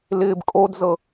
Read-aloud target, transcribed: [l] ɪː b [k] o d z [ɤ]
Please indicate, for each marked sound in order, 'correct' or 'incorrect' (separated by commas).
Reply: correct, incorrect, correct